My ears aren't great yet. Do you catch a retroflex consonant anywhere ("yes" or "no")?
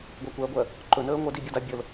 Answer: no